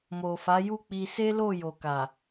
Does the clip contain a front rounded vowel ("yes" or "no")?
no